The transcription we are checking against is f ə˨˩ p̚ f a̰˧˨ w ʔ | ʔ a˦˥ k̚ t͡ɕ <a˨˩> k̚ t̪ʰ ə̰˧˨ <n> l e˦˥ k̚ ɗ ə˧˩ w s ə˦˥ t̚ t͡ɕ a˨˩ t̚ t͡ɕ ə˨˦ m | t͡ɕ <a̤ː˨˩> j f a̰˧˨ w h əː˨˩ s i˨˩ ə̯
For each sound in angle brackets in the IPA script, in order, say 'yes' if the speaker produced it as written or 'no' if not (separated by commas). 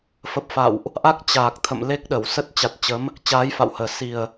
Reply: no, no, no